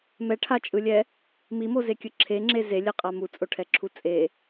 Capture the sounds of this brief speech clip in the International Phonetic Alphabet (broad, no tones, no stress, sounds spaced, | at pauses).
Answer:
m ɛ ʈʰ a t͡ʃʼ ɯ lʲ ɛ | m i m o z e kʲ ɯ ǁʰ e ŋ͡ǁ e z e lʲ ɛ qʼ a m u t͡sʼ o ʈʰ ɛ ǁʰ u t͡sʼ e